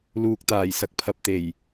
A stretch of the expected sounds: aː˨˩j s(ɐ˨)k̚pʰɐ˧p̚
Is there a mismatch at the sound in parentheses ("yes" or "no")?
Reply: no